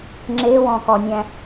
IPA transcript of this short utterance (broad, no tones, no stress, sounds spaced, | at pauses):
ŋ͡ǁ e w ɔ̃ k ɔ nʲ æ̃